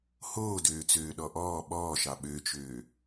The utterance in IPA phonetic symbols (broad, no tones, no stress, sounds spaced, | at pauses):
h oː d øː t͡s øː ɗ ɔ ʔ ɔː ɓ ɔː ʃ ɑ ɓ ø t͡ʃ øː